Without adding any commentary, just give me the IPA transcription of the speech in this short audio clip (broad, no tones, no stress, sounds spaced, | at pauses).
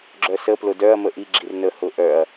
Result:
ɡ͡ǁ œ s ə p l ʊ d œ ɐ̯ m ə ʔ i ɡ͡ǁ i r n ə h ʊ ʔ œ ɐ̯